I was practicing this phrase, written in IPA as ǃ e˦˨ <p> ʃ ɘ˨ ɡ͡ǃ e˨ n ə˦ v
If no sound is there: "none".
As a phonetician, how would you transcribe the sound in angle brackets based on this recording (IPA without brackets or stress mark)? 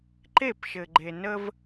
p